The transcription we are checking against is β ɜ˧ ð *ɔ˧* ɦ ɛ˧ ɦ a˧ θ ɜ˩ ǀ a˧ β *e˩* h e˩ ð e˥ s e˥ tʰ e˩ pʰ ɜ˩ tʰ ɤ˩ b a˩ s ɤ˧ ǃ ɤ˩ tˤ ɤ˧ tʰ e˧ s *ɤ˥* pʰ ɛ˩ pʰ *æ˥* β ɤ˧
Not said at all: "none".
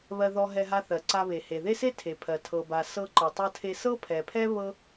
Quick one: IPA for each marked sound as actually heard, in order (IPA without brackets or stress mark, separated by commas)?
ɔ˧, e˩, ɤ˥, ɛ˥